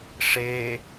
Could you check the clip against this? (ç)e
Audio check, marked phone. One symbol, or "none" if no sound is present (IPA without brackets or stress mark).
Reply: ʂ